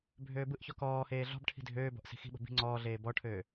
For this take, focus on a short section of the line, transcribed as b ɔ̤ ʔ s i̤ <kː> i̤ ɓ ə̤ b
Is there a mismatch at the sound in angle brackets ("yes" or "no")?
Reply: yes